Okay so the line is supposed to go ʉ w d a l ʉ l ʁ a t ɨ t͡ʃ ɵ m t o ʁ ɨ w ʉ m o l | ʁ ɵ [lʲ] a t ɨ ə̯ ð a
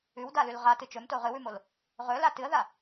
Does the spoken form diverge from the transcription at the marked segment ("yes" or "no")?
yes